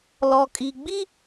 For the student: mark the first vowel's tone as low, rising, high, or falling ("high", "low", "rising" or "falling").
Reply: low